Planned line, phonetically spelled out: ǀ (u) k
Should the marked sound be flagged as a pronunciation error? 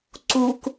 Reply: no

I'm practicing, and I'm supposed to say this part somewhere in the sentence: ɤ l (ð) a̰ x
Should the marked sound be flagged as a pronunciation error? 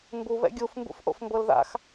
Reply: no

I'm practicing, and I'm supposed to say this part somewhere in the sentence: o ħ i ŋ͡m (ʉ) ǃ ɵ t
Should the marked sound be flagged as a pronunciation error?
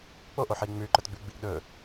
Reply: no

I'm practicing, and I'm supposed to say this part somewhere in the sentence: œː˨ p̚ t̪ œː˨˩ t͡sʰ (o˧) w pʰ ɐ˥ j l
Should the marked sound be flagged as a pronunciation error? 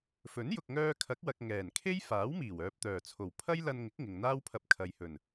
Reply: yes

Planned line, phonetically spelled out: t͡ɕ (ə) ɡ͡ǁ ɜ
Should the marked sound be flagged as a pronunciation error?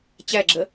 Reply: yes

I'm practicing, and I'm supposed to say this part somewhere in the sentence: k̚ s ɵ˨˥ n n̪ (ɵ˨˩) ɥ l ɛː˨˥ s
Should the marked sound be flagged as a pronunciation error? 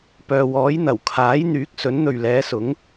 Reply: yes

